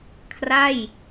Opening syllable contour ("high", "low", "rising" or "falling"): falling